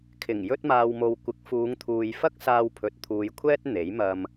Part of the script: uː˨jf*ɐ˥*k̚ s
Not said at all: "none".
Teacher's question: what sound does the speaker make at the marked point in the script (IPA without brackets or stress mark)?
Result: ɐ˥